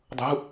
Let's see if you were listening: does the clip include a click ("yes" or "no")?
no